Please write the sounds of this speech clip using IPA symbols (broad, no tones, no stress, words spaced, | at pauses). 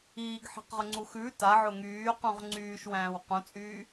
iːɡħi̤qʁʊŋ͡ǀu xʉ taʕʊ ŋyːqũʁ ŋ͡ǀyːʃwæ̃ːw qũt͡sʼyː